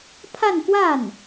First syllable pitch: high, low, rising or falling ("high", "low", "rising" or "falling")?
falling